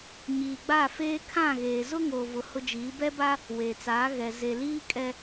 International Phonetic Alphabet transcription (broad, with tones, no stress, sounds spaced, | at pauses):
ɲ iː˨ ɡ͡b a˦˨ f eː˦ kʰ ã˦˨ ɣ eː˨ z ʊ˦ ŋ oː˨ v ʊ˨ h ʊ˦ d͡ʒ iː˨˦ b ɛ˦ b a˦ | w eː˨ t͡s aː˨˦ ɣ ɛ˨ z e˨ l iː˦ kʼ ɛ˦